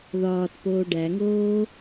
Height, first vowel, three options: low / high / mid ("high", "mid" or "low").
low